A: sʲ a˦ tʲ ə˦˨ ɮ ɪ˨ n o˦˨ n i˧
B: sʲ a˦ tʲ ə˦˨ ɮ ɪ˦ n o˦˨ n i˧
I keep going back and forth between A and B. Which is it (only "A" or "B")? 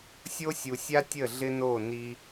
B